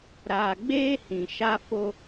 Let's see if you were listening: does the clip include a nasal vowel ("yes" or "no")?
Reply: yes